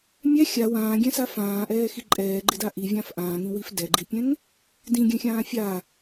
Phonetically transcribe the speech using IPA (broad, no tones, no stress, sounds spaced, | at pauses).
mʲ ɛ xʲ a w ãː ɡʲ ɛ̃ s a f ãː ʔ ɛː x i ǃʼ ɛː ɡ͡ǃ ɪ d a ʔ i vʲ ã f ʔ ãː ŋ ĩ w i f d ɛ ɡ͡ǃ i pʲ ɛ̃ ŋ | d ĩ ɡʲ ɛ̃ xʲ ãː fʲ a